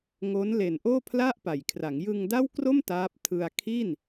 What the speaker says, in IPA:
ŋ o˦˥ n l e˨˩ n ʔ oː˥˩ pʰ l a˥˩ ʔ p a˨˩ j kʰ r a˩˦ ŋ j ɯ˧ ŋ d a˥˩ w k r o˥˩ m t aː˦˥ p̚ tʰ ɯ˧ a̯ kʰ i˥˩ n

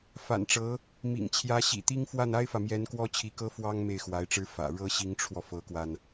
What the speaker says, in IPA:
f a̰˨˩ n ʈ͡ʂ ɤ˧˥ | m ḭ˨˩ ŋ t͡ɕʰ j ä˧˥ ɕ ḭ˨˩ t̪ i˥ ŋ f w a˥˩ n a˥ ɪ̯ f ä˨ m j ɛ˧˥ n k w ɔ˥ t͡ɕʰ i˧˥ k ɤ˥ f w ɑ˥ ŋ m e˥˩ ɪ̯ x w a˧˥ ɪ̯ ʈ͡ʂ ɻ̩˥ f ä̰˨˩ ɻ ɤ˥ ɕ i˧˥ ŋ ʈ͡ʂʰ w ɔ˧ f ɤ˧˥ k w a˧ n

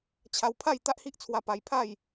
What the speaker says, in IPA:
t͡ɕʰ a˧ w pʰ a˥˧ j t̪ a˦ ʔ h i˦ ʔ t͡sʰ w a˧ p a˧ j pʰ a˥˧ j

